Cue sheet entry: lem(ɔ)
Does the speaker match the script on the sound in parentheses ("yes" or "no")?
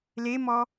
yes